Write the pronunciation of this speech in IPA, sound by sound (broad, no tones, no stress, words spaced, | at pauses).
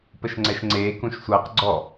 pəʃŋ͡ǀɛʃŋ͡ǀeː kũʃsʷʌːq ɡ͡ǀɔ